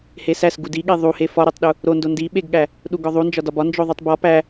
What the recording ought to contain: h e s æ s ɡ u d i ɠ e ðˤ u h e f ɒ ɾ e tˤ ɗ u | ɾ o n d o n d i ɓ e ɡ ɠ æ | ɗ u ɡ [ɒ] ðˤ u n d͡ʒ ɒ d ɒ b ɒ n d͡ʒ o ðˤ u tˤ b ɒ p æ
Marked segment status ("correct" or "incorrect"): correct